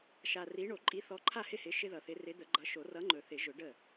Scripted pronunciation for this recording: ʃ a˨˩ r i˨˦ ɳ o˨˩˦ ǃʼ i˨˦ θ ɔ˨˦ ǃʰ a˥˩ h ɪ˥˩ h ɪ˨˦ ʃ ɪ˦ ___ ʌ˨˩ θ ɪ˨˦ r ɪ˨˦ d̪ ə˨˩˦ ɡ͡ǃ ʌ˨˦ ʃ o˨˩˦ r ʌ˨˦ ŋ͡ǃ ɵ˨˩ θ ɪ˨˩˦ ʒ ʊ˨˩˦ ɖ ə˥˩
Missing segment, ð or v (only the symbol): ð